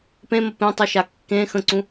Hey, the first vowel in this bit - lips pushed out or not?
no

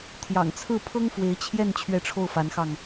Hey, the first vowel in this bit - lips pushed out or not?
no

